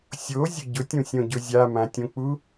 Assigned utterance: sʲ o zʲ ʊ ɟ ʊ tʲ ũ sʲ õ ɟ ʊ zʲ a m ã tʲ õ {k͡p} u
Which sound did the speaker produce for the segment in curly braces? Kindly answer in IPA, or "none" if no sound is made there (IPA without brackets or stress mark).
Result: k͡p